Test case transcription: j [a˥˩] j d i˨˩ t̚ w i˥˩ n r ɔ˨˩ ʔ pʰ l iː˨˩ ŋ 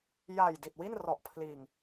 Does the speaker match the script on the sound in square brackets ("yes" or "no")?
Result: no